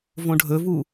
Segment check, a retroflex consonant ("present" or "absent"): present